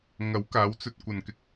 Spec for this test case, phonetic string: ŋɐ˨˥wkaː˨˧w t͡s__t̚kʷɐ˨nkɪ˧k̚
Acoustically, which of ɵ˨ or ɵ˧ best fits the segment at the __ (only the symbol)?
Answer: ɵ˧